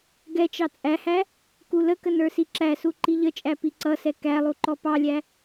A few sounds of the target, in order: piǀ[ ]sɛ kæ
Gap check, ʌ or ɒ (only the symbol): ʌ